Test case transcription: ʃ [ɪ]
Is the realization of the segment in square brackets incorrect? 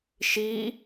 yes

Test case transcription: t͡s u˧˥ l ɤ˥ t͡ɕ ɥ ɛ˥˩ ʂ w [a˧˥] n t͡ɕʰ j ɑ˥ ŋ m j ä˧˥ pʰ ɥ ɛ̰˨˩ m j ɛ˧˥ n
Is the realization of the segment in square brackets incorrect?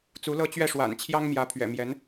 yes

